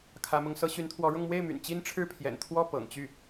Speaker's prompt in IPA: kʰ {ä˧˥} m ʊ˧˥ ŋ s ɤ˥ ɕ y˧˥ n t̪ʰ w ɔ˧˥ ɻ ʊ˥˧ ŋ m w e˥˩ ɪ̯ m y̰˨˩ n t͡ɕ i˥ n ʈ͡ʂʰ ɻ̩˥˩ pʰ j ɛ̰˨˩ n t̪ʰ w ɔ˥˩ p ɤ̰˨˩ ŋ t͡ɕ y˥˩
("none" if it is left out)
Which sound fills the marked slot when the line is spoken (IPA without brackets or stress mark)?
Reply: ä˧˥